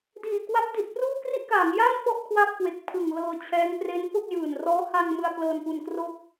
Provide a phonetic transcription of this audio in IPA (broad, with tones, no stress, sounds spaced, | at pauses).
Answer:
d iː˨˩ k w a˦˥ p̚ d i˨˩ t̚ p r uː˥˩ k r i˥˩ ʔ k aː˩˦ ŋ j aː˥˩ n f ɔ˥˩ ʔ kʰ w a˥˩ p̚ k w e˨˩ k̚ pʰ ɯ˨˩ ŋ l ɤː˧ t͡ɕʰ ɛː˦˥ ŋ p r e˦˥ n f o˥˩ k̚ j ɯː˨˩ n r ɔː˦˥ h a˧ ŋ m ɯ˧ a̯ k l ɤː˧ n p u˧ n k r o˥˩ k̚